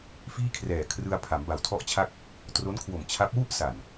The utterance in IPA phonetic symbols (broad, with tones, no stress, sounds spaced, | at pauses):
f iː˥˩ kʰ r ɛː˨˩ kʰ r ɯ˧ a̯ pʰ a˩˦ m b a˨˩ w tʰ ɔ˥˩ ʔ t͡ɕʰ a˥˩ k̚ | t r o˦˥ n kʰ w o˨˩ m t͡ɕʰ a˦˥ p̚ w u˥˩ ʔ s a˨˩ n